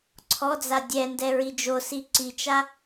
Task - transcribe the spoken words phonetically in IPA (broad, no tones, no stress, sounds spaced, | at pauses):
ǀʰ ɔ d͡z a dʲ ɛ n d ɛ ɹ i d͡ʒ o s i ǀ i t͡ʃ a